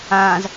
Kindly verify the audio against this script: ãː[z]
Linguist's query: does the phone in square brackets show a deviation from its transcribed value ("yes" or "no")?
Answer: no